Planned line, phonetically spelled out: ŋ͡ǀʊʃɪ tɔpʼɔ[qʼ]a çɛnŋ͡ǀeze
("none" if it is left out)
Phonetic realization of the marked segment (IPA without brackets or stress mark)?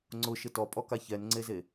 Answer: k